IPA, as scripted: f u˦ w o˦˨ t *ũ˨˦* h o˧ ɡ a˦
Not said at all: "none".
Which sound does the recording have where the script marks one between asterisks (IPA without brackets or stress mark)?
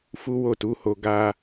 u˨˦